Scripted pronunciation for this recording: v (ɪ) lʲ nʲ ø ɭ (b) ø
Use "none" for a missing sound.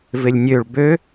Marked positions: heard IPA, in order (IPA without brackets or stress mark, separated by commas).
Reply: ɪ, b